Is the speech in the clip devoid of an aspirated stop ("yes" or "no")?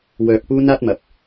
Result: yes